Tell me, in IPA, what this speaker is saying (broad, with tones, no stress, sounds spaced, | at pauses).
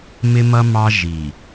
m ɪ˦ m ʌ˦ m ɑ˦ ʒ i˨